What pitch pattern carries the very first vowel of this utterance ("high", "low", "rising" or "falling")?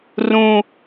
high